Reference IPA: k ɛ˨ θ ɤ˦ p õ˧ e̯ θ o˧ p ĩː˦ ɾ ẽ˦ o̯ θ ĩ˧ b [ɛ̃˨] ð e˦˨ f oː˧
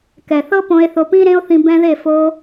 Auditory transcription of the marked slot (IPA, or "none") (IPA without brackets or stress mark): ɛ̃˧